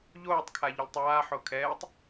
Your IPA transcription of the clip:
ʎoːtˤkʰa ʎʏlʲtˤaːħo kʰɛːtˤ

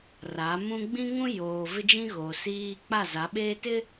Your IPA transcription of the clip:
ra˨˦mũ˦ ɡ͡bĩ˦ŋũ˦joː˨ vɪ˦d͡ʒĩ˦ɣoː˨ siː˦ k͡pa˦˨za˨˦ɓeː˦ tɪ˦

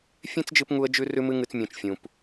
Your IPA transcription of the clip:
fʲẽ˦t͡sd͡ʒɨ˧pŋu˧ə̯d͡ʒʉ˧ rʉ˦mɨ˦ŋɨ˧t͡s mʲũ˨t͡ʃfʲũ˨p

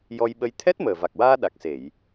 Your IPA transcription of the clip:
jɔ˧jɓə˧j t̪ʰɛ˦˥t̚məː˨˩va˨˩k̚waː˧ ɗa˨˩k̚se˨˩˨j

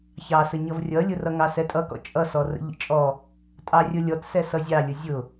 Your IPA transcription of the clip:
çɑsə ɲʌvrʲʌlʲʊrʌ ŋɑsɛtʼʌkɔ̰ t͡ʃʼʌsɔrə̰ ʎə̰t͡ʃʼɔ | tʼɑrʲʊlʲɔt sɛsʌzʲɑlʲʊ zʲʊ

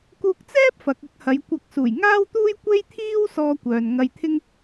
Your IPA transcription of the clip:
kuː˧k̚t͡sɛː˥p̚ fɐ˨k̚ ɐ˥k̚hɐ˨˧jkʷɐ˧k̚ suː˨˩jŋaː˥wt̪uː˥j kʷe˥jt̪ʰiː˥w sɔː˧kʷœː˨n ŋɐ˧jt̪ʰɪ˥ŋ

